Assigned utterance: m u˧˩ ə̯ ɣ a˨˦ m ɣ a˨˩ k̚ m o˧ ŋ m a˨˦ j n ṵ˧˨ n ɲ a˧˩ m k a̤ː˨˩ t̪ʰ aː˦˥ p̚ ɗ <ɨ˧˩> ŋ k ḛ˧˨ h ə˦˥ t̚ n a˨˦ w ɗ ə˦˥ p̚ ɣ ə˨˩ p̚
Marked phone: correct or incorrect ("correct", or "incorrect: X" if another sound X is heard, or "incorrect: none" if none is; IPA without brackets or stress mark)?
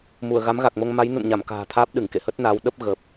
correct